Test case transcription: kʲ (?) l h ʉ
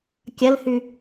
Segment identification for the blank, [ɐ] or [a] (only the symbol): ɐ